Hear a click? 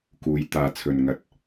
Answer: no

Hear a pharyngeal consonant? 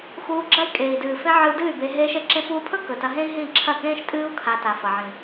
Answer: yes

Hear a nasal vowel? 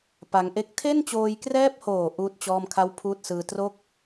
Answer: no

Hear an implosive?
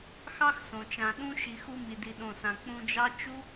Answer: yes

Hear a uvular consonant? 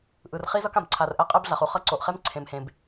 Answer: yes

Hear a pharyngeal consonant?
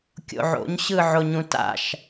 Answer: yes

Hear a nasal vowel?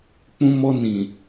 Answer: yes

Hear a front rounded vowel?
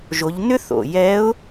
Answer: yes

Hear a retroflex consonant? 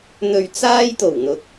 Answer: no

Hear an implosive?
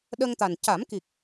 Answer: yes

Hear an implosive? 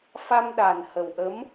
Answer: yes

